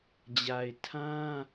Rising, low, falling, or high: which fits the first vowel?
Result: low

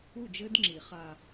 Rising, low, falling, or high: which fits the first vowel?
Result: falling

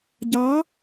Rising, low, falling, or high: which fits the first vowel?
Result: rising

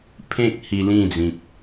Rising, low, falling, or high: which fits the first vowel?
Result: high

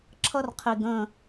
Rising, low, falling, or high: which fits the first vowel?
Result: high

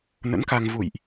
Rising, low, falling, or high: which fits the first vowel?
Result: rising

